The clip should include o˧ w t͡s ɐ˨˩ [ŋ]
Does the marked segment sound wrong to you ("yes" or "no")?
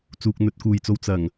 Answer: no